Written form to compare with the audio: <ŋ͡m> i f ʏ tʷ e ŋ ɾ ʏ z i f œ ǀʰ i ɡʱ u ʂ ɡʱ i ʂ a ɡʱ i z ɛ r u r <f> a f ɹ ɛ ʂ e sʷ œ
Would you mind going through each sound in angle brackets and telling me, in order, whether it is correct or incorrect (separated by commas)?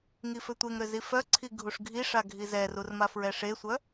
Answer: incorrect, incorrect